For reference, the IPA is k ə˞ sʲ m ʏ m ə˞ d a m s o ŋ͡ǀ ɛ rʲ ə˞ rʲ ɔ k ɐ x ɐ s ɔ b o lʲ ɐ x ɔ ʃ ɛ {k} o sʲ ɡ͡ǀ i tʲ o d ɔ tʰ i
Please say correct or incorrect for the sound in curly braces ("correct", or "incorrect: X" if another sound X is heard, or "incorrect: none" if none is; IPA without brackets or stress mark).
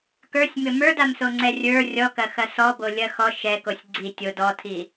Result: correct